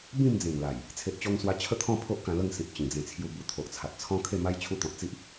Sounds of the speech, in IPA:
bĩ˥˧md͡zẽ˨˩ŋla˨˩j | t͡sʰe˨ʔt͡ɕɔ˧ŋ swa˧t͡ɕʰə˥˧ t̪ʰɔ̃˥˧ pʰo˦ʔkã˧lə˥˧ŋsĩ˨p̚ t͡ɕĩ˨˩d͡zẽ˧t͡sʰju˧bu˧ t̪ʰo˨ʔt͡sʰa˨t̚ t͡sʰɔ̃˦kʰe˥˧ma˦j t͡ɕʰu˧t̪ɔ̃˨t̚t͡si˦ʔ

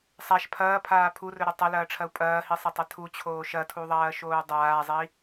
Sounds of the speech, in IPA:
sˤaʃ pʰɐːpʰaː pʰurɵɾi tˤɐlɐːʈ͡ʂʰɐu̯ pʼɐːhisˤɐtˤɐ tʰut͡ɕʰoː ʃɐtʰuðˤɐːʃoːu̯ dˤaːzˤi

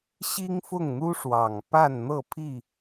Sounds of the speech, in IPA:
ɕi˦ŋfʊ˥˨ŋn̪u˦ʂwɑ˨˩ŋ pa˥˨nn̪ɤ˥˨pʰi˥˨

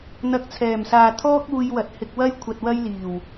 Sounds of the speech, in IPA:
n̪ɐ˧k̚t͡sʰɛː˨˩msaː˨ t̪ʰɔː˥k̚uː˧jwɐ˨t̚ hɪ˧k̚wɐ˥jkʷʰɐ˧t̚ wɐ˥jliː˨˩w

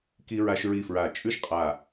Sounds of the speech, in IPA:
ki˥ɹa˥ʃɹi˥˧ fɹa˧˩t͡ʃʼʉ˥ʃqʼa˧˩

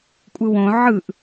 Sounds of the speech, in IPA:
kʷʼɯwõ ʕɯʔ

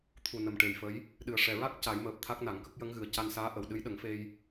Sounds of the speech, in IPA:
t̪ʰu˨˩nə˨˩˨m ʈe˨˩jfə˧˥j | ɗɨ˨˩ə̯ʂɛ˨˩ɹa˦˥k̚ ca˨˩˦jməː˨˩p̚ t̪ʰa˦˥k̚na˨˩˦ŋkə˦˥k̚ jə˧˥ŋɣɨ˨˩ə̯ca˧nsaː˧˥ ʔə˨˩˨wɗɨ˧˥j ɗə˨˩˦ŋfe˧j

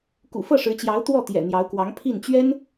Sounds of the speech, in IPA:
kṵ˨˩fɤ˥˩ʂɻ̩˧˥t͡ɕjɑ˧˥ʊ̯ t̪wɔ˥˩t̪jɛ̰˨˩n̪jɑ˧˥ʊ̯kwɑ˧˥ŋ pʰi˥˩n t͡ɕɥɛ˥n

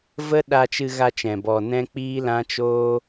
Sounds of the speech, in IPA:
və˦ ɗa˧t͡ʃɨ˧ɣa˧ t͡ʃɛ̃˨bɔ˨ nɛ̃˦k͡piː˦lã˦ t͡ʃoː˦

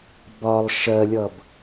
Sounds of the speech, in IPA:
bɒlˠ ʃɜlʲʌb

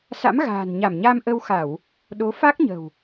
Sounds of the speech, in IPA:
sa̰˧˥mɣa̤ː˨˩nɲa˧˩m ɲa˧mʔə˧wxa˧˩˨w | ɗo˨˦fa˦˥k̚ ɲə̤˨˩w

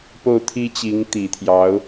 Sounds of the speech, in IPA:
po˥˩ʊ̯t̪ʰi˥t͡ɕi˧˥ŋ t̪i˨˩t̪ʰjɑ˧˥ʊ̯

